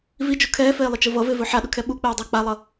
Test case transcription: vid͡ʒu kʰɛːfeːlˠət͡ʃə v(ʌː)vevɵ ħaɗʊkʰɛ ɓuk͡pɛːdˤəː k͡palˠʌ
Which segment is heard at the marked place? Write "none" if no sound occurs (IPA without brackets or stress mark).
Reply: ʌ